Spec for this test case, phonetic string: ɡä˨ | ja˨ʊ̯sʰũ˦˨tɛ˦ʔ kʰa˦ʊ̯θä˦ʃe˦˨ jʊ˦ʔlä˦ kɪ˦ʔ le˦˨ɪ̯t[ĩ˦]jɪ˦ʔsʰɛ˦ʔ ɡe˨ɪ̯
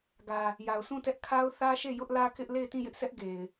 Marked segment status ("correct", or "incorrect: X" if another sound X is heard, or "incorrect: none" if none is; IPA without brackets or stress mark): incorrect: ĩ˦˨